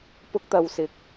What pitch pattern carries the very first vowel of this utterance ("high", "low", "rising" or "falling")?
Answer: high